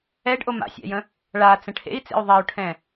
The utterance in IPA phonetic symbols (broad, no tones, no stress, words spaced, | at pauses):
ɛɖʔo ma̰sʲa̰jə̃ | ɭat͡sə̃ ʈʰḛi̯t͡sḛy̯ ðˤɛu̯ʈʰɛ̃